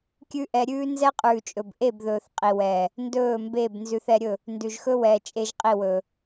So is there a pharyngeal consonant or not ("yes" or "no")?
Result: no